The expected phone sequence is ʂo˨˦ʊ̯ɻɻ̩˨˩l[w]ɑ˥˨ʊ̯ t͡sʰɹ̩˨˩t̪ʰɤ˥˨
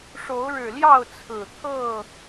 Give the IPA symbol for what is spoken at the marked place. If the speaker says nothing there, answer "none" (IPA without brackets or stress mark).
j